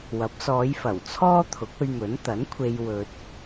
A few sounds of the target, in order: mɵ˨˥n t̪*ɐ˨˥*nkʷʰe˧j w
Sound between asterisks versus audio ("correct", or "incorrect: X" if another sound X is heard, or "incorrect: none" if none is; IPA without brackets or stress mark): correct